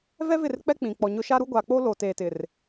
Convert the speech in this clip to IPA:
vɛ˦vɪ˦˨rk͡pɛ˦ k͡pĩ˨k͡pɔ˨ɲʊ˦ ʃa˦ɾu˦ ɡʷa˨k͡po˦ lo˨teː˨ tɪ˨r

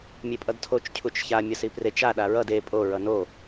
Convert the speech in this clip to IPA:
mʲepʼʌdtʰot͡ʃ cʰut͡ʃça mʲʌsipret͡ʃ a ɗaɹʌd e pʼo ɹʌno

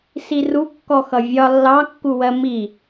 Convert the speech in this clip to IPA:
siru kːɔxʌvʲɒ lːɑkːuwɜ mi

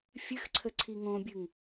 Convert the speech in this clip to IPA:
fʲɨxǀʰə ǀʰiŋõbʲɨŋ

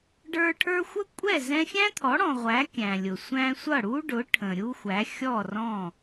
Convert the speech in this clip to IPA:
ɖə˞˧ ʈʰə˞˧xʷə˥ kʷʼɛ˥˩zɛ̃˧xʲæ̃˥t̪ʰɔ˩˥ ɽɔ̃˩ʁʷæ˩˥ kʲæ̃˩lʲʊ˩ sʷæ̃˧sʷʌ˥˩ɽu˥ɖʊ˩˥ ʈʰə̃˩ ɾʲu˥xʷæ˩˥xʲɔ˥˩rɔ̃˥˩

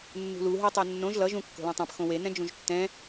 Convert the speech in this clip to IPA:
nːṳlu ɦetˤɛnːõʒ lʌ ʒũ kːo̤lɛ̃tˤãp xõwe nɛ̃d͡ʒũʒtːɛ̃

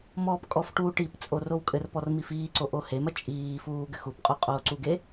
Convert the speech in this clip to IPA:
mɔːpkʼɔfʈuː ʈipt͡sʼo rowkʼɘrpɔr mifiːǀo ʔohemɐ t͡ʃʼiːfuː ɡɘxupqʼo qʼoːǀuɡe

